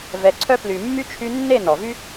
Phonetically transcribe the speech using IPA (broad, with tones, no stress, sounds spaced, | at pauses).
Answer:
v ɛ˨˦ ǀʰ œ˦ p l y˨ mː y˦ t͡ʃʰ y˧ nː e˦˨ n ɔ˨ v y˦